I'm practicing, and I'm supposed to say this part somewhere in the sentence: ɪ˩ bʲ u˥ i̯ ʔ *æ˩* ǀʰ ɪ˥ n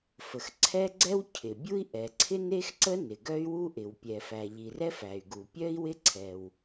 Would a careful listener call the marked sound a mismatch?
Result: yes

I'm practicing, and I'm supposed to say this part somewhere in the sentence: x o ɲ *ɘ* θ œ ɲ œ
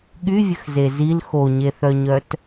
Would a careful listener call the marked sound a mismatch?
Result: yes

